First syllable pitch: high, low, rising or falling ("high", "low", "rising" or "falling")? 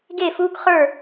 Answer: falling